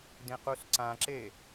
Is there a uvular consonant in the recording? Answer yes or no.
yes